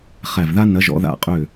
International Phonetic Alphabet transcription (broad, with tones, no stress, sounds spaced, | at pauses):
χ æ˧˩ v ð a˦ n ɐ˨˦ ʒ ɔ̰˨˦ ð a̰˧˩ qʼ ø˧˩